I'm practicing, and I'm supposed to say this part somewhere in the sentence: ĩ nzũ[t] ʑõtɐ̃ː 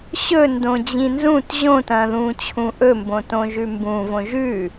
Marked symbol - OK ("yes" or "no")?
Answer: yes